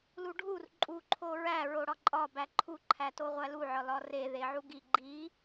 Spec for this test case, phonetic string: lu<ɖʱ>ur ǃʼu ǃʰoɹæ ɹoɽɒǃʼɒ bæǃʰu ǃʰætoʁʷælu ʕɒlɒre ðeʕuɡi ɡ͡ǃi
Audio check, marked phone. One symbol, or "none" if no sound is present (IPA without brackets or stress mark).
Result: ɖʱ